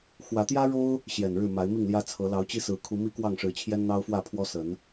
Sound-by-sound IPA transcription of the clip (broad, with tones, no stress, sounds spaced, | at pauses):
x w ä˨˦ t̪ j ä˦ ɻ o˦ ʊ̯ | ɕ j ɛ˨˩ n ɻ ɻ̩˥˨ m a˨˦ ɪ̯ m i˥˨ ŋ l j ä˦ t͡sʰ ɤ˨˦ l ɑ˨˦ ʊ̯ t͡ɕ i˦ s ɹ̩˨˦ kʰ u˨˦ m i˦ k w ɑ˥˨ ŋ ʂ ɻ̩˨˦ t͡ɕʰ j ɛ˦ n n̪ ɑ˦ ʊ̯ f w ä˥˨ pʰ w ɔ˦ s ə˨˦ n